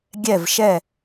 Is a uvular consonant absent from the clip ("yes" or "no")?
yes